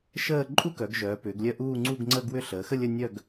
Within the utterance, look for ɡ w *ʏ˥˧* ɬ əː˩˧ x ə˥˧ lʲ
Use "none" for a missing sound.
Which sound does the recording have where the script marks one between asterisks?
ʏ˥˧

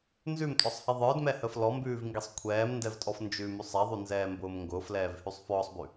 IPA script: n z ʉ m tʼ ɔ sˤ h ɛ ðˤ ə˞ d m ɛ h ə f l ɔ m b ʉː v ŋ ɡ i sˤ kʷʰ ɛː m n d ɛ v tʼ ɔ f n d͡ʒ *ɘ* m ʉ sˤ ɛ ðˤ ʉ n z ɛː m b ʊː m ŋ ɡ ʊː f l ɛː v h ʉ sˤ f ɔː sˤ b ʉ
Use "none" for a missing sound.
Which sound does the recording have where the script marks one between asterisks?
ʉ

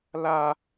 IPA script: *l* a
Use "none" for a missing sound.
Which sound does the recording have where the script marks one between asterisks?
l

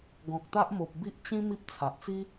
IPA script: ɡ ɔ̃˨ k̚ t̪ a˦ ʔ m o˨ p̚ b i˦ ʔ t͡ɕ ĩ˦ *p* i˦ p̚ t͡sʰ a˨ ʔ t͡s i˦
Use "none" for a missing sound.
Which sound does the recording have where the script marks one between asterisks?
m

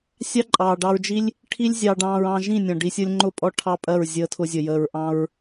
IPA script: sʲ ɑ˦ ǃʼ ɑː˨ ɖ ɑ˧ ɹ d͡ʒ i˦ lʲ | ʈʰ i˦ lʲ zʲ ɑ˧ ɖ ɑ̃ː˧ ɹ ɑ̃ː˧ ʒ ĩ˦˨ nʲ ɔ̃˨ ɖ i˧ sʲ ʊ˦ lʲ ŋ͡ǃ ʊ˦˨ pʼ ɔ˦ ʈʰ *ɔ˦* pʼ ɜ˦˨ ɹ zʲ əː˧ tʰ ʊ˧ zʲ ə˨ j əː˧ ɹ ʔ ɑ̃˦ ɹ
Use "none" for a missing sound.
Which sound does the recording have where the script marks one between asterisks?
ɑ˦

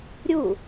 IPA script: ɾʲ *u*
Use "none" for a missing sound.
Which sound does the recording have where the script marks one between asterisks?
u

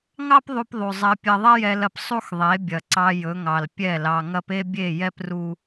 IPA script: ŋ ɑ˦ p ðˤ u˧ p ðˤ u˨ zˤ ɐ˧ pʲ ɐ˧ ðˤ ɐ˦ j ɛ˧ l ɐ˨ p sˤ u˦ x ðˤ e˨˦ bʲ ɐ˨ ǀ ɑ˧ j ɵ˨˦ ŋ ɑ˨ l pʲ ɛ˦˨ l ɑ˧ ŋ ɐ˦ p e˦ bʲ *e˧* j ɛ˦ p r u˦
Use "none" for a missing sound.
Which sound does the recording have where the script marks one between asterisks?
e˦˨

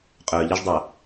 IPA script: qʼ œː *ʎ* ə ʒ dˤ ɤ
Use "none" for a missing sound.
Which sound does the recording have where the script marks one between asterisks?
ʎ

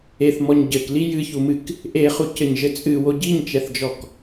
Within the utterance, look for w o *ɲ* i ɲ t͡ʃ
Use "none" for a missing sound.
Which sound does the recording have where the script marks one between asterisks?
ɟ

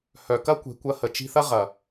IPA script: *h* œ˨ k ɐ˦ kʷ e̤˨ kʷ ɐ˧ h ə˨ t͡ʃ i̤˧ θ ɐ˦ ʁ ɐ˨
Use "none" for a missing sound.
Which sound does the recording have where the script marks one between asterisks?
h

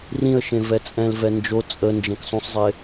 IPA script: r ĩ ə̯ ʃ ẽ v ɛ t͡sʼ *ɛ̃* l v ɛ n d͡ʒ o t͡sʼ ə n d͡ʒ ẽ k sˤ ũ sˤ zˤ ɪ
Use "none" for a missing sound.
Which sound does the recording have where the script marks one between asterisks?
ɛ̃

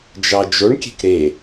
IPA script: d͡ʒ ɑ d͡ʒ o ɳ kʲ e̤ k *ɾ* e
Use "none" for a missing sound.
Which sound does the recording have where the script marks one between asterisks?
ɾ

